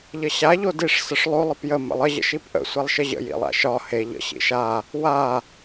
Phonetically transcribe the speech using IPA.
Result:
ʎ ə ɕ a ʎ o d i ʂ s ə ʂ lˠ o lˠ ə p j ə m ə̰ lˠ ə ʑ ə̰ ʃ i p ʔ ə̰ sʷ e lˠ ʃ ə ʑ ə̰ j ḭ lˠ a̰ ʃ ɒ h e ʎ ə̰ ɕ ḭ ʃ a | w a

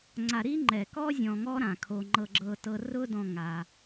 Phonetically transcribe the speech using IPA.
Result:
ŋ͡ǀ a˨ ɾ i˦ ŋ͡ǃ ɛ˨ k ɔ˦ zʲ ɔ̃˧ ŋ ɔ˦ ɾ ã˨ kʰ o˧ ŋ͡ǃ ɤ˧ ɡ͡ǁ ɤ˧ t ɤ˧ r ʊ˦ d ɔ̃˧ ŋ a˧

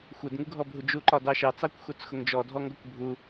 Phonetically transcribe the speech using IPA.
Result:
xʷ ɛ d ŋ u ɡʱ ɔ bʱ u d͡ʒ u ǃ ɒ d ɑ ʃ ɑ t͡s ɑ kʷ x u t͡s x ʊ ŋ d͡ʒ ɔ dʱ ɔ ŋ ɡ ɔ kʷ bʱ u

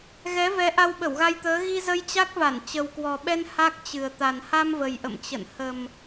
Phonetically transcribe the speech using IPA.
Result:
ɣ ɛ˨˦ v ɛ˨˦ ʔ a˧ w ɓ ə˧˩ w ɣ a˧ j t̪ əː˨˦ ɣ i˧ z ə˧ j t͡ɕ a˦˥ k̚ v a˧˩ n t͡ɕ ə˨˩ w k w ɔ˨˩ ɓ ɛ˧ n h a˦˥ k̚ t͡ɕ ɨ˨˩ ə̯ t̪ a˨˩ n h a˧ m v ə˨˩ j ʔ ə̰˧˨ m t͡ɕ ə̰˧˨ n h ə˨˩ m

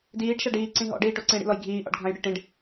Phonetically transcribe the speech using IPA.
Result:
d iː ɖ ʃ a ɖ iː ǀ ĩ ɦ ɔ̰ ɖ iː ʈ o ǀ ĩ ɽ ḭ l ɔ j ɡʱ iː ʔ ɔ̰ ɖ ɡʱ ã j ɽ ɪ ʈ ĩ ɖ

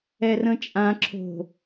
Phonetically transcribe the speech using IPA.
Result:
ɛ r ə̃ t͡ʃʼ ã ǁʰ o̤

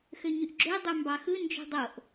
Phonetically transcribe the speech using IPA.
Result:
x ø ɲ y ʔ ɡ͡ǁ ø dˤ ø m b ɑ x ɯ n d͡ʒ ṳ dˤ o ʔ

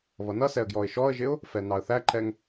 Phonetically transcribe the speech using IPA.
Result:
β ʌ n ʌ s ɛ ə̯ ɡ j ɔ ɪ̯ ʃ ɔ ə̯ ʒ ɪ ʊ̯ | f ɛ n ɑ ə̯ θ æ ǃ ɛ ŋ

